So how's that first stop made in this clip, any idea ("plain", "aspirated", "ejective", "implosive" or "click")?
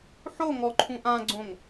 click